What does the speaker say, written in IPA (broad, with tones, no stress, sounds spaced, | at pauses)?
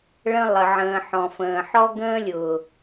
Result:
ɭ ə̃˦ lˠ ə˨ ʕ ə̃ː˨ ħ ɔ̃˨ f ə̃ː˨ ħ ɔ˦ ɡ ə̃ː˦ lʲ ʊː˨